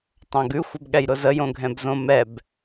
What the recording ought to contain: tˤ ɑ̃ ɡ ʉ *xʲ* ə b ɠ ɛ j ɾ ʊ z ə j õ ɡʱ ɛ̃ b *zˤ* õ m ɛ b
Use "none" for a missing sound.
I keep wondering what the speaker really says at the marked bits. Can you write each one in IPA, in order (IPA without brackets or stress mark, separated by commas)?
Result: xʷ, z